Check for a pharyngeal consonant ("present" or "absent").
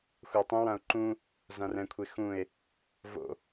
absent